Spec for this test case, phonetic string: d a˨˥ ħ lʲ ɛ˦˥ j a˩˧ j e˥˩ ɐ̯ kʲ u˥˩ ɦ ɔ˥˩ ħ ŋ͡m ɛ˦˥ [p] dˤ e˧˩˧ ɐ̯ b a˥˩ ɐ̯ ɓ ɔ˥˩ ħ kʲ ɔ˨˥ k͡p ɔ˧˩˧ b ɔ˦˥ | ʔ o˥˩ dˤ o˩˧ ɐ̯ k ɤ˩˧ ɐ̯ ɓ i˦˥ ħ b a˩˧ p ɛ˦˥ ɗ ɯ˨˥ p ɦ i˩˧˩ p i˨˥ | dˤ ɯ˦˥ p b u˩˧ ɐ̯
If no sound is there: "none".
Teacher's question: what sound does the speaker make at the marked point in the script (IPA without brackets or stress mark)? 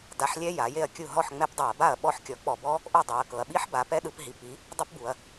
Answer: p